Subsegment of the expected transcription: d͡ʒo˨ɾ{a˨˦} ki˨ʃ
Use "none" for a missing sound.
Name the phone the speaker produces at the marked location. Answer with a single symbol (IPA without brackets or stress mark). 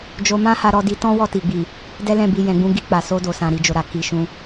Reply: a˨